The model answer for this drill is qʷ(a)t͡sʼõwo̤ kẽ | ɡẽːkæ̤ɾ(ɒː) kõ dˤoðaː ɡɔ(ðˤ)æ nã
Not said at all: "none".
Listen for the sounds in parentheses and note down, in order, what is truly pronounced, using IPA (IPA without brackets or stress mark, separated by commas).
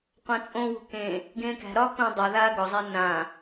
ã, ɒː, zˤ